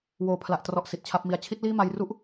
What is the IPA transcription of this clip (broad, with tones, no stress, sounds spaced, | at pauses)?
w oː˨˩ pʰ l a˨˩ ʔ t r ɔ˨˩ ʔ s i˨˩ t̚ t͡ɕʰ a˦˥ p̚ m i˧ a̯ t͡ɕʰ i˦˥ t̚ l iː˥˩ m a˧ j r u˥˩ ʔ